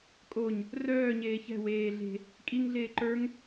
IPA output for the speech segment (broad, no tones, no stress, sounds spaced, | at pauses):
kʼ o ɲ | r œː ɲ eː ç ɛ̤ w eː ɮ e̤ | kʼ i ŋ ɮ eː ǃ ə˞ ŋ